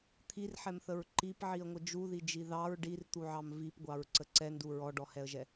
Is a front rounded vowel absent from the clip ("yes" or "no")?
yes